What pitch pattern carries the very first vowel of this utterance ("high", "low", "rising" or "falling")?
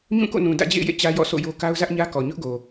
falling